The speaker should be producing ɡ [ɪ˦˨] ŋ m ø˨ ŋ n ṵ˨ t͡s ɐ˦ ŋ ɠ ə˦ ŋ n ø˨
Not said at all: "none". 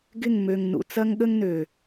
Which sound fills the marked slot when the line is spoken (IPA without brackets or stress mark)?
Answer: ɪ˦˨